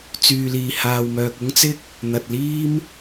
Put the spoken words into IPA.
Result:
t͡syː˨liː˨haː˨w mœː˨k̚ʊ˥ŋt͡sɪ˥k̚ | n̪ɐ˨t̚liː˥m

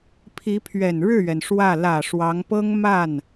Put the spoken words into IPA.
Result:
pʰi˧˥pʰɥɛ˨˩nɻɻ̩˥˩ɥɛ˩n ʂwä˥˩ lä˨˩ ʂwɑ˧˥ŋ pɤ˥ŋ ma˥˩n

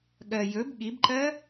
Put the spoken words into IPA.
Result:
ɠɜ jɵb ɠibǃɜ

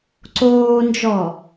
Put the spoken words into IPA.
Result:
ǀoːnd͡ʒɔ

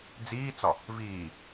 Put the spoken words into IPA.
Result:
d͡ziːt͡sɒ | viː

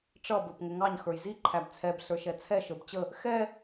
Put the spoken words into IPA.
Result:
ʈ͡ʂʌ bə˞pŋʊŋɑɲ xə˞jzi ǃʰæbt͡sʰɛb ɬə˞ʃɛt͡sʰɛ ʃə˞bt͡ɕə | xɛ

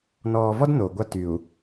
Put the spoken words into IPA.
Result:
nɔː˨vɔ˦d noː˨ɡʷa˦ty˨u̯

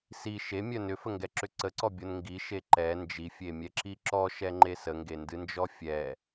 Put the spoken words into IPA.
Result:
si ʃemʲœ nʏfəŋɡɛǁʏ ǀəǀɔbʲon ŋɡiʃe ǃɛ nd͡ʒifʲemʲɛǁi ǁɔʃɛŋ͡ǃe səŋɡendɨnd͡ʒɔ fʲɛ

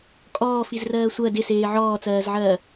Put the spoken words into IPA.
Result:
kʼɔː fizrɜːsʷɜ dɪseː ʕɔːt͡sɜːzʕɜː

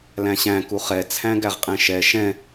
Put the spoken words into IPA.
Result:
læ̃ɕæ̃ kuχɛ t͡sʰæ̃ɡæʁqʼɛ̃ʃɛ ʃɛ̃

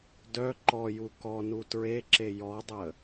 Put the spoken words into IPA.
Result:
dœ ǃɔju kɔnu tɹeǁe jɔdˤə

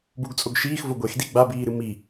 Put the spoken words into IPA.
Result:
buɡt͡sʼoɡʃiːx voɡʷexdi ɡ͡babiːɾɨ mi

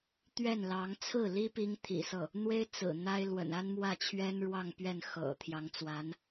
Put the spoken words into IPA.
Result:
t̪ɥɛ˥˩nlɑ˧˥ŋ t͡sʰɹ̩˥˩li˥ pi˥ŋt̪ʰḭ˨˩sɤ˥˩ | n̪we˥ɪ̯t͡sɹ̩˨˩ n̪a˥ɪ̯ lwə̰˨˩na˥nmwä˥˩t͡ɕʰɥɛ˥n ɻwɑ˥˧ŋpɥɛ˥˩n xɤ̰˨˩ t̪ʰjɑ˧˥ŋt͡swa˧˥n

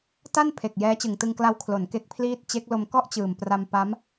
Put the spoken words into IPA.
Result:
ta˥˩npʰe˨˩k̚ jɛː˦˥t͡ɕɯ˨˩ŋtɯ˧ŋkla˦˥w kʰlo˩˦n ke˦˥k̚pʰliː˥˩t̚ t͡ɕe˦˥k̚lo˧m kɔ˥˩ʔt͡ɕɯː˨˩mpra˧m pa˦˥m

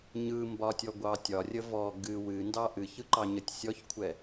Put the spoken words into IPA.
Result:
ɲɯmbɒtʲɔɡʷɑ tʲɒrʲə vɔ ɡɨ wɨndɑ ʔɨçɯǃɑɲətʲ sʲɔçkʷʰɛ

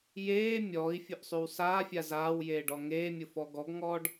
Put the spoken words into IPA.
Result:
jeː mʲɔːi̯fʲʊʔsˤyw saːfʲa zaːwjeːɖɔ ŋeːmʲʊfɔ ɡɔɡŋɔːɖ

